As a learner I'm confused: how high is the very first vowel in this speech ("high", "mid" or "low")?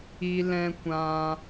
high